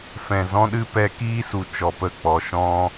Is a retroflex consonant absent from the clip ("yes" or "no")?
yes